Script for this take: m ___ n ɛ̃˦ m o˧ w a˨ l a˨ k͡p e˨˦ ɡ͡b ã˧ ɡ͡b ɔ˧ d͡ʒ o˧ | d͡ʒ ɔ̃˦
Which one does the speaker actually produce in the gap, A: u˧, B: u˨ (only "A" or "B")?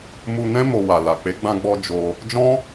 A